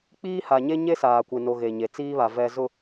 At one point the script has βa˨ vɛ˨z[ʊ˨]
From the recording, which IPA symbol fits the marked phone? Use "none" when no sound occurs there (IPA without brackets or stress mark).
ʊ˨